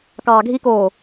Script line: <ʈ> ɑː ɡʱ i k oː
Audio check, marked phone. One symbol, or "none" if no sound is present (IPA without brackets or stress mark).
k